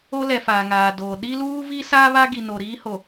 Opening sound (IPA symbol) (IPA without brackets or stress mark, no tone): o